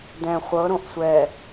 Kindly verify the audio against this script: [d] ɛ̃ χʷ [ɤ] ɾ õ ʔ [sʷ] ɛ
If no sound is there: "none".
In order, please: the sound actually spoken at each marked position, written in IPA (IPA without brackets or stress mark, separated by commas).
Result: d, ɤ, sʷ